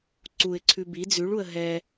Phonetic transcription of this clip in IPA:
ǀuɪ̯ǀʰʉ bi d͡zʉɭuə̯ ɦɛ

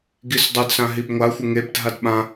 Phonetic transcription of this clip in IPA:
ɡisdˤʊdsã ɦibŋʷaxʷɪ ŋebdʱad ɓã

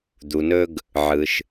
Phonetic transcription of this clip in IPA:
d̪u˩nɵ˧ɡ | ʕɯ˩ʃ

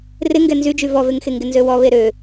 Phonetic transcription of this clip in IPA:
rɪŋɡɛ nzyd͡ʒy vɔveŋxeŋɡɪ nzøwɔ βeɾø

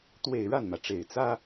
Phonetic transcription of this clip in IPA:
t̪we˥˧ɪ̯ ɻa˥˩nmä˩ʈ͡ʂe˨˩ɪ̯ t͡sä˥

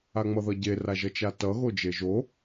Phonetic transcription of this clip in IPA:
aŋ͡mʌðʌɟe raʒʌt͡ʃatʌ ɣod͡ʒeʒo

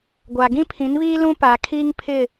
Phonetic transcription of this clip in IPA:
ɡʷa˨ɡĩ˦pʰĩ˨˦nβiː˦ lũ˦ paː˨kʰiː˦ŋpʰɪ˦˨

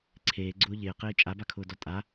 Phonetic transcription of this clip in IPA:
ǀʰeːɡ͡ǀʊː ʎɪːqɪː t͡ʃʼabakʰʊːdɔ tʼa

